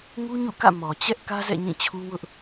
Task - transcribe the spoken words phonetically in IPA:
ŋ u˦ ɲ ṵ˦˨ k ä̰˦˨ m ɔ˨ t͡ɕ ɛ˦ ʔ k ä˦ z ɛ̰˦˨ ɲ ĩ˦˨ t͡ɕʰ u˦ w ʊ˦ ʔ

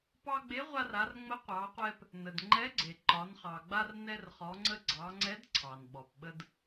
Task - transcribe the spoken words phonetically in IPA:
p ɑ˧ ɡ͡b e˨˥ ʁʷ a˧ r a˩˧ r ŋ͡m ə˨˥ qʷ ɑ˩˧ qʷ ɛ˧ p | n ə˩ d ŋ͡ǃ ɛ˨˥ ɡ͡ǀ e˩ ǃ ɒ˩˧ n χ ɑ˩ ɡ͡b a˧ r n ɛ˧ r χ ɔ˩˧ ŋ͡ǀ ə˧ ɡ͡ǀ ɑ˩˧ ŋ͡ǀ ɛ˨˥ d ǀʰ ɑ˩ n ɓ ɔ˩ p ɓ ə˧ d

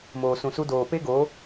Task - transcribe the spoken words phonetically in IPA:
m oː˨ s ũ˨ s u˧ d oː˨ p e˦ ɡ o˨˦

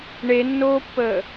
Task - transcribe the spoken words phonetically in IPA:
ɳ e nː oː pː əː

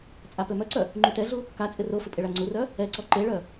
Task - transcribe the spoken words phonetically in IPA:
t͡sʼ a p ø m œ ǀ œ | ŋ͡ǃ y t ɛ ɮ u | k a t͡sʼ ɪ r o f ɪ pʼ ɪ ɭ a ŋ͡ǀ u r œ | ɛ ǀ ɔ ǃ e ɭ œ

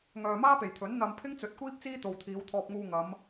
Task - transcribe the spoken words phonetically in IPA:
ŋ œː˨ m aː˥ p e˨˩ j t̪ʰ ɵ˨˥ n n̪ ɐ˧ m pʰ ɪ˥ ŋ t͡s ɵ˨˥ t̚ kʷ iː˥ p̚ t͡s iː˥ t̪ o˨ w t̪ʰ iː˨˧ w t̪ʰ ɔː˧ p̚ ŋ uː˧ ŋ ɐ˨˧ m

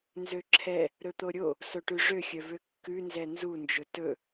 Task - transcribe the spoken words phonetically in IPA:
n z ø ǁʰ ɛ | ɾ ɵ t̪ o ɾʲ o | s o ʈ ʉ ʐ ø xʲ œ v ø kː ʉ n z ɛ n z u n d͡ʒ ɵ t ɵ

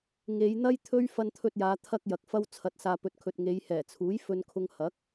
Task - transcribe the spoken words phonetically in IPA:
ŋ e˨˧ j n̪ ɐ˥ j t̪ʰ ɵ˥ ɥ f ɐ˧ n t̪ʰ ɵ˧ t̚ j aː˨˧ t̪ʰ ɐ˥ k̚ j ɐ˨ k̚ f ɐ˧ w t͡sʰ ɐ˨ t̚ s aː˨ p ɵ˨ t̚ kʰ ɵ˨ t̚ ŋ e˨˧ j h ɛː˨˩ t͡sʰ uː˨˥ j f ɵ˧ n kʰ ʊ˧ ŋ h ɐ˨˥ k̚

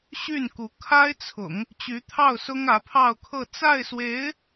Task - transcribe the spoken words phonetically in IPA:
ɕ y˥˩ n k u˧˥ kʰ a˥ ɪ̯ t͡sʰ ʊ̰˨˩˦ ŋ | t͡ɕ y˧˥ t̪ʰ ɑ˥˩ ʊ̯ s ʊ˥ ŋ ä˧˥ pʰ ɑ˥˧ ʊ̯ kʰ ɤ˥˧ t͡s a˥˩ ɪ̯ s w e˧˥ ɪ̯

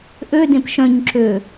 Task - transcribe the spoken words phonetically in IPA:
ʔ ø d ẽ p ʃ œ̃ ɲ ǁ ø

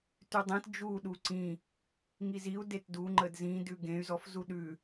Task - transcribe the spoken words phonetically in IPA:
t ʉ dˤ ẽ t d͡ʒ u ɗ u ǀ ĩ | ŋ i z i u̯ d e t d u ŋ͡ǃ ə d z ĩ d ʉ ɡ ẽ y̯ z ɔ f z u ɗ ʉ

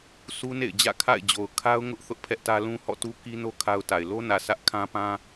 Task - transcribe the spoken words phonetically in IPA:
s u˦ n ḛ˦˨ ɪ̯ d͡ʑ ä̰˦˨ kʰ a̰˦˨ ɪ̯ d͡ʑ o˨ ʊ̯ kʰ a˦ ʊ̯ ŋ ʊ˦ ʔ θ ʊ˦ ʔ pʰ ɛ˦ ʔ t ä˦ l ũ˦ h ɔ̰˦˨ t u˦ k i˦ n o˦ kʰ a˦ ʊ̯ t a˨ ɪ̯ l o˦ n ä˨ sʰ ä˦ ʔ kʰ ã˦ p ã˦

